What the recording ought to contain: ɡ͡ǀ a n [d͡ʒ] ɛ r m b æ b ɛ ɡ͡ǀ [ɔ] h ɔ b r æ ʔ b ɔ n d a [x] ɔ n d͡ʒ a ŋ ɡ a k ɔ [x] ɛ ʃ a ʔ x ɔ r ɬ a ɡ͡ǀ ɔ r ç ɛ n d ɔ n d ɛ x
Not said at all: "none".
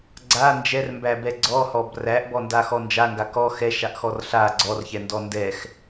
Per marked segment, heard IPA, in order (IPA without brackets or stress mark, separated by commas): d͡ʒ, ɔ, x, x